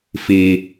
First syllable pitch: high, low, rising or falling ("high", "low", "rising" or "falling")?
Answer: low